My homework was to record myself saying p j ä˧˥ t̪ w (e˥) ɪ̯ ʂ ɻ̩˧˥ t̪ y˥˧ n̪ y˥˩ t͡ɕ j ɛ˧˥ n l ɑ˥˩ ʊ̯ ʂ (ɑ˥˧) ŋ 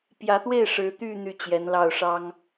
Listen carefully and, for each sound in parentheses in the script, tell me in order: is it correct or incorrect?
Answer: incorrect: e˥˩, incorrect: ɑ˥

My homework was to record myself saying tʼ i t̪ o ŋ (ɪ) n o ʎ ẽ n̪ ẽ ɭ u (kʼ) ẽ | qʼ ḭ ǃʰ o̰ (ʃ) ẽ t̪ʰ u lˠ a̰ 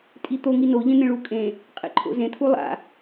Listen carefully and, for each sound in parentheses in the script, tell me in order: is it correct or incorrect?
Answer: incorrect: i, correct, incorrect: z

